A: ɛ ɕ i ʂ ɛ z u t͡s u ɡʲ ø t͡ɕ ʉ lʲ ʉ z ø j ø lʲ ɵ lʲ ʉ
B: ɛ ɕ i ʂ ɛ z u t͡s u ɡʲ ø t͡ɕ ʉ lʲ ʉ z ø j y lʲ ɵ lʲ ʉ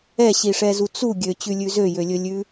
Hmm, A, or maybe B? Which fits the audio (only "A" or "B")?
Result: A